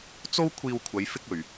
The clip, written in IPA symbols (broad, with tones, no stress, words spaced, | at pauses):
t͡so˥wkʷʰiː˧w kʷʰɐ˨˧j fɪ˥k̚ɵ˨ɥ